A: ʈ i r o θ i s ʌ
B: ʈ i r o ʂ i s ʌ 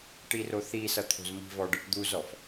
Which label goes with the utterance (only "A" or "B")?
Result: A